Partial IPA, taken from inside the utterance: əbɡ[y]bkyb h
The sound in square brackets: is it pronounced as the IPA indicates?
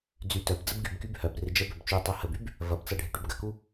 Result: yes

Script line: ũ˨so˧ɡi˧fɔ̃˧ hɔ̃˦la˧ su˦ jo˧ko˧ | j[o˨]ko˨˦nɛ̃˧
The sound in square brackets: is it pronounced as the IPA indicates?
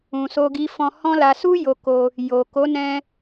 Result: yes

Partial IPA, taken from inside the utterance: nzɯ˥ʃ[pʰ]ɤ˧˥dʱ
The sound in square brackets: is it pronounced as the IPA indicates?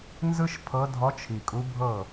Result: yes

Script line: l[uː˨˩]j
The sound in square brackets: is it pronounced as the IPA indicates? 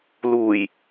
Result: yes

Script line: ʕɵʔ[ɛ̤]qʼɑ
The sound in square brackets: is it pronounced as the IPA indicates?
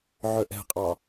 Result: yes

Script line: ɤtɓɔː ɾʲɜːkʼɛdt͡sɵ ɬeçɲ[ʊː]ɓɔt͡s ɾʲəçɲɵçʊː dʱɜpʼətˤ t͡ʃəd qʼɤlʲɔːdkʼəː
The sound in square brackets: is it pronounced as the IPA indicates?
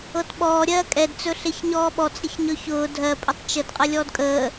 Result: no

